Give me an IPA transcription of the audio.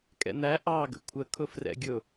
kʼ ɛ̰ n̪ æ ʔ ɑ ɡ ə̰ kʷʰ ə kʰ ʊ f r ɛ̰ ɡʲ ʊ

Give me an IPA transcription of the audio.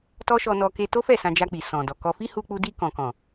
t ɔ˦ ʃ ɔ˧ n ɔ˧ k e˧ t o˦ f ɛ˦˨ s ã˧ d͡ʒ a˧ k͡p i˨ s ɔ̃˨ d ɔ˨ k ɔ˧ f i˦ h u˧ k͡p u˧ d i˧ k ɔ̃˨ k ɔ̃˨

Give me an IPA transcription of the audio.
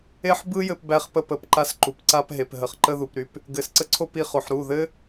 e˦ ħ b ɯ˦ j ɘ˧ p b æ˧ χ p ə˧ p ə˨ p ǃ a˧ s ǃ u˨ p ǀ a˧ p ɦ e˨ p ɦ ə˨ χ ǃ ə˧ ð u˨ p ɾ y˧ p | ɡ ɘ˨ s ǀ ə˧ ǀʰ o˧ p i˧ χ o˨ ħ ɾ u˦˨ ð ɘ˦

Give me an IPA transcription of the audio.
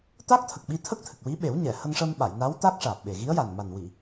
t̪ a˦˥ k̚ t̪ʰ ə˨˩ k̚ ɓ i˧ t̪ʰ ə˦˥ k̚ t̪ʰ ɨ˨˩ k̚ w i˧˥ ɓ e˨˩˦ w ɲ ɛ˨˩˨ h ə˧ ŋ ʂ ə˧ m ɓ a˨˩˨ j n a˧˥ w t̪ a˦˥ k̚ ʂ aː˨˩ p̚ ɓ e˨˩ ɣ i˧˥ ə̯ j a˨˩ n m a˨˩ n w i˨˩˨

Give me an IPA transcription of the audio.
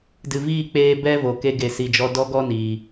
d ɨ˨ v iː˦˨ k͡p eː˧ b ɛ˦ v o˨ k e˧ ɡ e˨ s i˨ d͡ʒ ɔ˧ d ɔ˦ ɡ ɔ˦ n iː˨

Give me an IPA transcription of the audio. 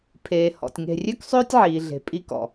pʰ eː˨ h ɔ̰˨ tʲ ŋ e̤˨ rʲ ø˦ k sˤ øː˦ tʲ ʕ iː˨ ɮ e̤˨ pʼ i˦ k ɔ̰˨

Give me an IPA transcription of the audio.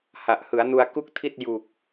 h a˨˩ ʔ h ɯ˩˦ a̯ n u˧ a̯ k u˥˩ k̚ tʰ i˥˩ t̚ j u˨˩ k̚

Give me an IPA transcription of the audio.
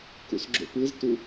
k ṵ s ɡ͡ǁ o̰ p ɯ z t u

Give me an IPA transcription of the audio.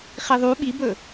χ i ðˤ u ɓ i b ɵ

